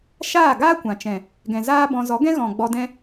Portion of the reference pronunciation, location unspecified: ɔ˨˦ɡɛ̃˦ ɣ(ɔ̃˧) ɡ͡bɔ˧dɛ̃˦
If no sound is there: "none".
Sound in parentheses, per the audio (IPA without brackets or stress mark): ɔ̃˨